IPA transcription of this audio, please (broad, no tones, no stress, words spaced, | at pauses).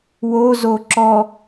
wozo ǁɔ